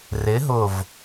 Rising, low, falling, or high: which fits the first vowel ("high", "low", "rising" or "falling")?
rising